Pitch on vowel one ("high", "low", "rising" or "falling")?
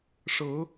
rising